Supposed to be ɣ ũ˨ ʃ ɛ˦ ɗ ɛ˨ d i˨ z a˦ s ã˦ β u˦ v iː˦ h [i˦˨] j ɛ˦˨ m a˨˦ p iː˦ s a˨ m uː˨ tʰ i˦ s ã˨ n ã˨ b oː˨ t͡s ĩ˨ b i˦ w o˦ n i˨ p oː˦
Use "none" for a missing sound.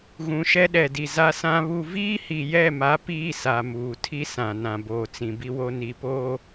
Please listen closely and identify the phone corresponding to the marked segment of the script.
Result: i˨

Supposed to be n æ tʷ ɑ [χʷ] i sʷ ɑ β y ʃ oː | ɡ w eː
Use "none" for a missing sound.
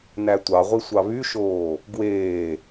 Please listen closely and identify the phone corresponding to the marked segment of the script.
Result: ʁʷ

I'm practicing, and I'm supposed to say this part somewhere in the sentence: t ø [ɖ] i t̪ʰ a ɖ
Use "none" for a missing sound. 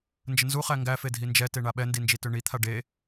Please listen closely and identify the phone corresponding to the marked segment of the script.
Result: ɳ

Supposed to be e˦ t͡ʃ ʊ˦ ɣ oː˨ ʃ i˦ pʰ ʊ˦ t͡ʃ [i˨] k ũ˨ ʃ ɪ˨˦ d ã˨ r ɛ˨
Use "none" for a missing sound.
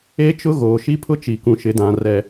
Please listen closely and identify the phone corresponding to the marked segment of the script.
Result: i˨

